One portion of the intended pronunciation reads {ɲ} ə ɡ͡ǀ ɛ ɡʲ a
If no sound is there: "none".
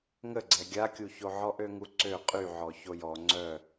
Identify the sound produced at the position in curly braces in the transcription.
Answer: ŋ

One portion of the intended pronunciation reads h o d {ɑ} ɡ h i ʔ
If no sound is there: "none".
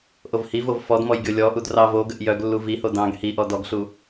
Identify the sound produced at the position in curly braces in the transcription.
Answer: ɑ̃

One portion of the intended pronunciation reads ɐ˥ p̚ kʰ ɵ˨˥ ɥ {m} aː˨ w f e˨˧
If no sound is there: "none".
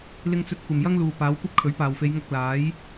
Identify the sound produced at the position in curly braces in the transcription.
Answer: p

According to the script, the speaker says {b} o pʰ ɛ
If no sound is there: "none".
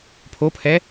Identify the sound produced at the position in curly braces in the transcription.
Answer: pʰ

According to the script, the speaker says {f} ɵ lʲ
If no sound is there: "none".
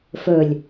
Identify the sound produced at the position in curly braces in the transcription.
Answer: f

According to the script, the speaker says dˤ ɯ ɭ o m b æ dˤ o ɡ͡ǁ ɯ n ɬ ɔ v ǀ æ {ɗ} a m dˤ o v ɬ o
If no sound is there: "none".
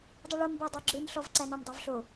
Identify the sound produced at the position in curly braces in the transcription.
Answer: n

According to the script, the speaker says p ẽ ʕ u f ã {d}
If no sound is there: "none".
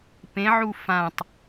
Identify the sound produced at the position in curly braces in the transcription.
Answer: tˤ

